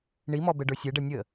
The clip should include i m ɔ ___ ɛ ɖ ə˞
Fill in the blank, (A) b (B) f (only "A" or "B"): A